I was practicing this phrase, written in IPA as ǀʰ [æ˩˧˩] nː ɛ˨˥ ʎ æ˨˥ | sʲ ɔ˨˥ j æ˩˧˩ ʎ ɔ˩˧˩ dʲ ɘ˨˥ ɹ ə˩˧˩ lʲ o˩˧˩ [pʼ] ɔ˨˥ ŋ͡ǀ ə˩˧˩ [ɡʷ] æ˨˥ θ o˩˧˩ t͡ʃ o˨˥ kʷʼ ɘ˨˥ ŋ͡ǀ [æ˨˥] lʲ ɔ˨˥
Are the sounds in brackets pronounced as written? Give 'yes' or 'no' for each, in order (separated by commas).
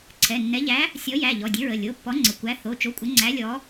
no, no, no, yes